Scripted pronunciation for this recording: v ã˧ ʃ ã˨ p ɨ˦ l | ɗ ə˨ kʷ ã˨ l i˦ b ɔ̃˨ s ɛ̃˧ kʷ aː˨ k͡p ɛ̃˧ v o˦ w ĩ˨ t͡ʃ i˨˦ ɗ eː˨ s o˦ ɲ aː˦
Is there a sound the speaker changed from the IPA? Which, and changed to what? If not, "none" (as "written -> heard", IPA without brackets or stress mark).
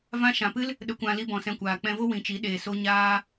none